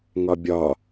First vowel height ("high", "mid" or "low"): low